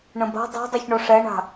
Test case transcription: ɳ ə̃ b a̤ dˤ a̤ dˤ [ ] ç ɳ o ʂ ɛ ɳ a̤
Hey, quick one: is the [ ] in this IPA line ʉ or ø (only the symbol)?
ø